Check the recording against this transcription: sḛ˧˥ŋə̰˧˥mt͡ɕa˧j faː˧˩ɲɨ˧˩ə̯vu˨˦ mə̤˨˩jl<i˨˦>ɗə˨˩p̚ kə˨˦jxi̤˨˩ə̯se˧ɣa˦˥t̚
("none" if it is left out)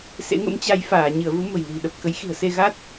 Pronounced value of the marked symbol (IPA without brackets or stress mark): i̤˨˩